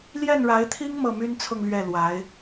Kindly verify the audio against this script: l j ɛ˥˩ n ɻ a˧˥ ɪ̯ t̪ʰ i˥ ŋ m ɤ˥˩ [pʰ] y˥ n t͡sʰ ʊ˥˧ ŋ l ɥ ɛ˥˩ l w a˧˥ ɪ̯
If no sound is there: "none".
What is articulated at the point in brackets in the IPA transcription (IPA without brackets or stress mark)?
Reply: m